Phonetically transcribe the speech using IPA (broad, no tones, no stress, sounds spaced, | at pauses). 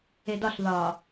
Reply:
e d ɒ ɬ ð ɒ